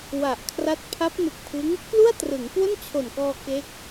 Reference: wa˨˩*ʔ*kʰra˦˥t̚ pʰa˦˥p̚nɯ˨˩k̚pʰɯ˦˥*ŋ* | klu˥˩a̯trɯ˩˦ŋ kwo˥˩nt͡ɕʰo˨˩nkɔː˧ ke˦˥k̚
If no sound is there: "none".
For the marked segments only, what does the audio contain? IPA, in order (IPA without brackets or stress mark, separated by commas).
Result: ʔ, ŋ